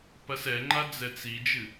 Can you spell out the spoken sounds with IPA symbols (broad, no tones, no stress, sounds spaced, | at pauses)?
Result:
p ɐ s ɛ ŋ͡ǃ a d͡z ɛ t͡s i d͡ʒ ɨ